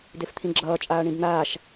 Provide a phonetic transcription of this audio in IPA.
d e f t̪ʰ ĩ ɡ͡ǁ ʌː t͡ʃʼ aː ɳ ĩ b n̪ aː ʃ

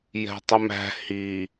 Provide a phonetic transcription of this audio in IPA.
j ɛ̤ tˤ ɪ m æ̤ h i

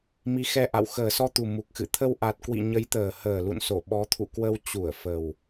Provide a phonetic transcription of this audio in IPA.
m i˨˦ x ɛ˧ ʔ a̰˧˨ w x əː˨˩ s ɔ˧ t̪ u˨˩ m u˨˩ k̚ x ɨ̰˧˨ t̪ʰ ə˧ w ʔ a˨˩ t̚ k w ḭ˧˨ ɲ ə˨˦ j t̪ əː˨˩ h əː˨˩ l ṵ˧˨ n s o˧˩ ɓ ɔ˨˦ t̪ʰ ṵ˧˨ k w ə˧ w t͡ɕ u˧˩ ə̯ f ə˨˩ w

